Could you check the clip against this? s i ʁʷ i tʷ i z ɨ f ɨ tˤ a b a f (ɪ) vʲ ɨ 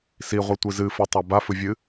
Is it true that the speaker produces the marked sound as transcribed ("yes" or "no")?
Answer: no